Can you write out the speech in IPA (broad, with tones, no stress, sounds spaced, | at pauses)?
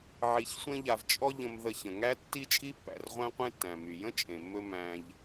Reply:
ʕ i˧ ç sʷ ẽ˥ ʎ a˧ v t͡ʃʼ ɔ˥ ʎ ə̃˧ m ð ə˧ ç ə̃˩ ŋ æ˥ tː i˥ t͡ʃʼ i˥ pː æ̰˩ r ʁʷ æ̃˥ qʷ ẽ˥ tː æ̃˩ m y˩ j ə̃˥ t͡ʃʼ ẽ˩ mː ɵ˧ m æ̃˧ ʎ